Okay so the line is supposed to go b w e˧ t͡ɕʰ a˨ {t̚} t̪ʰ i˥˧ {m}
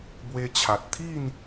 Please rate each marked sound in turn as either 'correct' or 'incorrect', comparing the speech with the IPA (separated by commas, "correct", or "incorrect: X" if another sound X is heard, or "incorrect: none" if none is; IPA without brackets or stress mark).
correct, incorrect: n